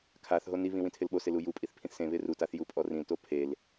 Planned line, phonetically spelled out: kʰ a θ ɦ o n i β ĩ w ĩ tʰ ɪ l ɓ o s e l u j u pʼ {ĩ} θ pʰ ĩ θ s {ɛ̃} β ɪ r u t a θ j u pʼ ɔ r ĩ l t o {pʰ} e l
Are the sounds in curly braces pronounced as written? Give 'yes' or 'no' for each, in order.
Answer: no, no, yes

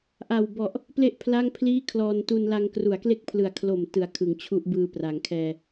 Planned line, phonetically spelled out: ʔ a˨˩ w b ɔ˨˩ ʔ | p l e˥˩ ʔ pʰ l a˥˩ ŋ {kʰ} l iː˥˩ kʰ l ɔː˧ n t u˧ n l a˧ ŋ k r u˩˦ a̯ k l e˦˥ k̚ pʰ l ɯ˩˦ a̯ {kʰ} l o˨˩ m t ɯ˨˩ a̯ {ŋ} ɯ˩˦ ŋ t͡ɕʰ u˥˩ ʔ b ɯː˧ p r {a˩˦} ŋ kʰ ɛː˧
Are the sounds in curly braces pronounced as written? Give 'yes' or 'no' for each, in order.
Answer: no, yes, no, yes

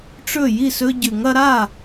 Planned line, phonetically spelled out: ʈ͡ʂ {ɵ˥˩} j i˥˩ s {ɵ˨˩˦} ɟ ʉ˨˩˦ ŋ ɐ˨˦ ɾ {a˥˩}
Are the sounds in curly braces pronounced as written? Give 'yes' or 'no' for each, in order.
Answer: yes, no, yes

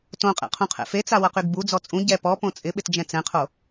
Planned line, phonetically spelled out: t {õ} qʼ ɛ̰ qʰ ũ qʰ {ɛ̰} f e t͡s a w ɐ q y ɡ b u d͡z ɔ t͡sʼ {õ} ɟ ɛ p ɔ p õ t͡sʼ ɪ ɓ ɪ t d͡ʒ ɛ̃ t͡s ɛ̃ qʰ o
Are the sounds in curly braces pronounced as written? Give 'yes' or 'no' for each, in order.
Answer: yes, yes, no

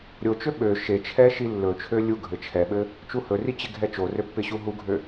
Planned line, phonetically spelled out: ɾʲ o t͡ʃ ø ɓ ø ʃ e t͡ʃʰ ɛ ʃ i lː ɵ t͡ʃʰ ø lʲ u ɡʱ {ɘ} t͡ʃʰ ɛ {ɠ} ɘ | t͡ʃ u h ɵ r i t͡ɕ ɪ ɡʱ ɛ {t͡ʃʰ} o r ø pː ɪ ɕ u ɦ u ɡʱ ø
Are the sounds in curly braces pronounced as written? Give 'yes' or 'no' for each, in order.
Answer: yes, no, no

